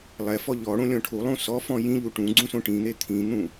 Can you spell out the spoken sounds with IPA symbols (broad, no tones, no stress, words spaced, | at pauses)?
lˠɛfɔ ʎɔɽõ lʲɔ̃ʈʰulˠũ sɔfɔ̃ jĩʎu ʈũ ɡ͡ǀũsõʈĩn̪e t̪ʰĩn̪ũ